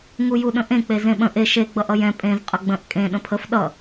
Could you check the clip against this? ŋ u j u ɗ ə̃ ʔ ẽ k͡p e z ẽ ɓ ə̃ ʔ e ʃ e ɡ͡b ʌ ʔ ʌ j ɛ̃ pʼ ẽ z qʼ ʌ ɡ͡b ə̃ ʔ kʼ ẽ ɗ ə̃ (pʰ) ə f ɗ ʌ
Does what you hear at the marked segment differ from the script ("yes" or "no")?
no